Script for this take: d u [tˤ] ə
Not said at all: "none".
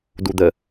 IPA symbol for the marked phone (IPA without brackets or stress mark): d̪